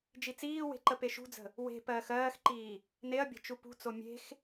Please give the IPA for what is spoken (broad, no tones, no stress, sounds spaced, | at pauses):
d͡ʒ i t͡s iː w e̤ ǃ ə p e ʃ ṳ d͡z ə̤ | w e̤ p ɜː x ɜː x ǃ iː | n e ɐ̯ bʲ ə̤ t͡ʃ u p ṳ t͡s o mʲ e̤ x